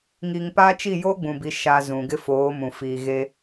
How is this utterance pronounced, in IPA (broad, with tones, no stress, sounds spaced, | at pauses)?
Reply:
ŋ i˨ ŋ p a˦ t͡ʃ i˦˨ j oː˦ ɡ͡b ũ˨ b i˨ ʃ a˨ z ũ˨ ɡ ɪ˦ f oː˨˦ m ũ˨ f iː˨ ɣ e˦